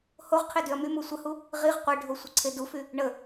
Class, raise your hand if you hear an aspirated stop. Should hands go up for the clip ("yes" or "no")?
yes